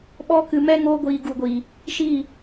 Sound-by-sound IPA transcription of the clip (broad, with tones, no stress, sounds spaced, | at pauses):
ɓ ɔ˦ k ɨ˧ m ɛ˦ ŋ oː˦ ɡʷ iː˧ ɡ u˨ ɡʷ iː˨ | ʃ iː˦˨